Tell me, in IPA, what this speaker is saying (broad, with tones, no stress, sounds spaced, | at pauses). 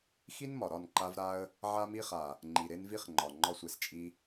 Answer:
x i˦ n m ɒ˨ ɾ ɒ˦˨ n ǃ a˧ v ɾ a˧ ə̯ | ʕ a˦ m i˦ χ a˨ | ŋ͡ǃ i˨ ɾ e˦ n v i˦ χ ŋ͡ǃ ɒ˨ ŋ͡ǃ ɒ˦ sʷ e˨ s t͡ʃʼ i˦